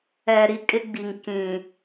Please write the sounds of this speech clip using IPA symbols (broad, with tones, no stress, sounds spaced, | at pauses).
ɛ˨ ɾ i˦ kʼ ɪ˦ ɡ͡b i˨ ŋ k ĩ˨